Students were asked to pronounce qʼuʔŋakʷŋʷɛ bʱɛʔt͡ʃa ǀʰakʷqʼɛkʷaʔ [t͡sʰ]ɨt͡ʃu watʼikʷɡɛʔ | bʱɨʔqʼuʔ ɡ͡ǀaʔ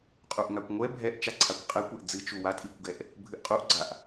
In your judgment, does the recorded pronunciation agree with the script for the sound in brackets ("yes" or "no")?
no